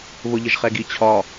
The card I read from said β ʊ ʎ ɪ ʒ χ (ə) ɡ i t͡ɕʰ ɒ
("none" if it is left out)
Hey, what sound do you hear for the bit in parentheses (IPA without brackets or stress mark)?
ɛ